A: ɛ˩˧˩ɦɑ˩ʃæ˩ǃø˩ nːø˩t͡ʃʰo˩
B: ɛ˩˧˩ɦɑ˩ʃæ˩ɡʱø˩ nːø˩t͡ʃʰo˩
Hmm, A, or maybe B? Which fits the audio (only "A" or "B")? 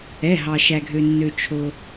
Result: B